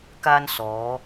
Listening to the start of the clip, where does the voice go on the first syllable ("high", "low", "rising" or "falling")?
high